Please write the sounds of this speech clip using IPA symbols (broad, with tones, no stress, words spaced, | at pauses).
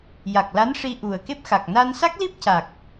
ja˨˩k̚la˧˥nʂi˧ ʔu˨˩ə̯ke˦˥p̚xa˨˩k̚ na˧nsa˦˥k̚li˦˥p̚ca˨˩k̚